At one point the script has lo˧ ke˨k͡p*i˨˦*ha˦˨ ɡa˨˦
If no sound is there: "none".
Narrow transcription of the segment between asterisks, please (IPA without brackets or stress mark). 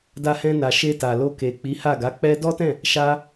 i˨˦